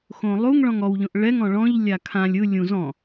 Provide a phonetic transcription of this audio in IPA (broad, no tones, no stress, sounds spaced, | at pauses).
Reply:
x õ lˠ u ŋ ɭ ɔ̃ ŋ ɔ w ʎ õ ʔ ɭ ɛ ŋ ɔ̃ ɭ ɔ̃ ʎ lʲ a kʰ ã lʲ ɯ lʲ ũ z ɔ̃